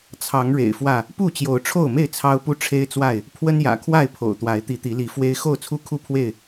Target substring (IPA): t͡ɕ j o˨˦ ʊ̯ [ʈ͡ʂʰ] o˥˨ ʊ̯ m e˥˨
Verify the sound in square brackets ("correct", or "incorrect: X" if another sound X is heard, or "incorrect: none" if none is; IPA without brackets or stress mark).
correct